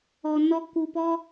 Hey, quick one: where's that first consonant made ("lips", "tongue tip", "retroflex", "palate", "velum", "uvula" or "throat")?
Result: tongue tip